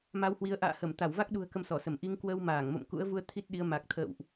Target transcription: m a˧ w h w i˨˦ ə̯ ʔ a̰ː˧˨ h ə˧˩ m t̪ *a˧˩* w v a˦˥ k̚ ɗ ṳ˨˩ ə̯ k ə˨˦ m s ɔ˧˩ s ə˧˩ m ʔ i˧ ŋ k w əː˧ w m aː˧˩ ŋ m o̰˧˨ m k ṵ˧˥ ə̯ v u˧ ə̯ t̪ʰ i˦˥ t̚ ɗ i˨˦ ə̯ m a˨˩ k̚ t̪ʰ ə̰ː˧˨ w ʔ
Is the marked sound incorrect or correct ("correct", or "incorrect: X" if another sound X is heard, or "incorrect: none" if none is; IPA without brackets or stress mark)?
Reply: correct